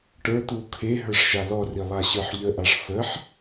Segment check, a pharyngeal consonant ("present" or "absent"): present